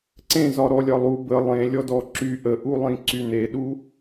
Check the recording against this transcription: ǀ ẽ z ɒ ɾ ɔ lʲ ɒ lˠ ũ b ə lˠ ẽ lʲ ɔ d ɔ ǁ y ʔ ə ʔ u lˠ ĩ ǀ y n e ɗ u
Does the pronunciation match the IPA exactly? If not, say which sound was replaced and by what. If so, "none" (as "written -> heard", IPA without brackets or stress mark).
ũ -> u